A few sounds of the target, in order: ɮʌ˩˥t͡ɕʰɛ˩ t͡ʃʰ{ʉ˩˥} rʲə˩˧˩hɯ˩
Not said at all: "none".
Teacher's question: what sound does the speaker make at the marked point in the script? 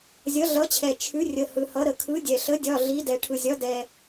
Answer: ʉ˩˥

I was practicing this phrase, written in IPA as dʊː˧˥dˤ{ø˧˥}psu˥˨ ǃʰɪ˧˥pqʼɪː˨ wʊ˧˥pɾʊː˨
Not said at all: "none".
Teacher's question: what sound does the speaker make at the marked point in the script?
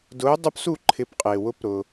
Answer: u˧˥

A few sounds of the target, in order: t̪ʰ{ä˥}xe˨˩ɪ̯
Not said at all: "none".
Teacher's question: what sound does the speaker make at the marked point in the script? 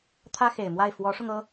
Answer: ä˥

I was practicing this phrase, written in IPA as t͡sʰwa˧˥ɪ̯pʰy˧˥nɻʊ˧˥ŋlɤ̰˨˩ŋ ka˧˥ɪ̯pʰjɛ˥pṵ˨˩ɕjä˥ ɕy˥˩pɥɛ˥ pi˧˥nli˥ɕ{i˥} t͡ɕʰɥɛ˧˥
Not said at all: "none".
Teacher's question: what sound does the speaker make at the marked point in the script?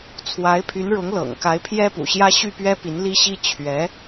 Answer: i˥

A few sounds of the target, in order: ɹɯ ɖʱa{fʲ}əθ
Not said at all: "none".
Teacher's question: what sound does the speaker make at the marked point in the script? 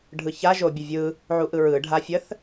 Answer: fʲ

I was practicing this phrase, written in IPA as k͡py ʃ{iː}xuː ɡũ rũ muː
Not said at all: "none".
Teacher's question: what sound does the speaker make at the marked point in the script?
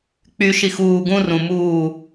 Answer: i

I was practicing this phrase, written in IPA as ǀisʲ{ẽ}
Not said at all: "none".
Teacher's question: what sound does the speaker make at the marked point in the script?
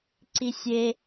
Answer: e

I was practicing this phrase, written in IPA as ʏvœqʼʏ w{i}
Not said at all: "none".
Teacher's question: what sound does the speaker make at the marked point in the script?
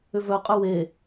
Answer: e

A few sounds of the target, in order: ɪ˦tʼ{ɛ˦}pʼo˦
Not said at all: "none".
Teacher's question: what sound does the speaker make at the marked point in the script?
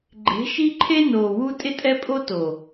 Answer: ɛ˦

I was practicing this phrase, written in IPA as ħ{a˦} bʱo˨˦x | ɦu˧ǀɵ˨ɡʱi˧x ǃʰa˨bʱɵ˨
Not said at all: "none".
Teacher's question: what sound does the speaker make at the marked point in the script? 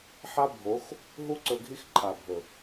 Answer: a˦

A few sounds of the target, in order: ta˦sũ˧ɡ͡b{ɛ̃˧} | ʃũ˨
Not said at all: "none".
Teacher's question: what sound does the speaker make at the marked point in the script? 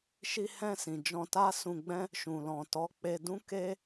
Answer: ɛ̃˦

